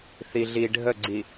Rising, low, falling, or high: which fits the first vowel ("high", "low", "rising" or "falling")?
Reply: low